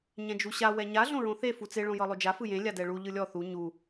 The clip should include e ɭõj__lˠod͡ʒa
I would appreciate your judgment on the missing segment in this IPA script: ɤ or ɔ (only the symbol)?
ɤ